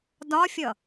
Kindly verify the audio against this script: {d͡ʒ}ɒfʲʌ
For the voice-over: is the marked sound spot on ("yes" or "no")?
no